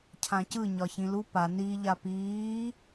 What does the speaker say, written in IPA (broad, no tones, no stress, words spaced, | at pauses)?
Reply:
cʰãcɯ ɲɒçĩlu pa ni ʎapiː